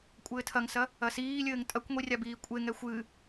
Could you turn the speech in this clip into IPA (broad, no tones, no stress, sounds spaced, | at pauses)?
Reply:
kʷʼ ɘː tʰ ɐ ŋ s ɐ | ɐ s iː lʲ ɘː ŋ tʼ ɐ kʷ ŋʷ i rʲ a b iː kʷʼ e ŋ ɛ xʷ ɨ